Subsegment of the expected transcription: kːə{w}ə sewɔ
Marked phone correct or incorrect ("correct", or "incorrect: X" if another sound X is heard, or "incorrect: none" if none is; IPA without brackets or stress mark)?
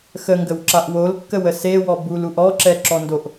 correct